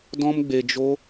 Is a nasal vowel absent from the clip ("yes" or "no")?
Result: no